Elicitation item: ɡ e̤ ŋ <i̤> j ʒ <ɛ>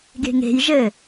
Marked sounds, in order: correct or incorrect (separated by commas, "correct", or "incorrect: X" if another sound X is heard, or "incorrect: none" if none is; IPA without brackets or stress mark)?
incorrect: e̤, incorrect: ɘ